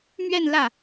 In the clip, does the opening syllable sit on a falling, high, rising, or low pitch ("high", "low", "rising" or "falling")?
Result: falling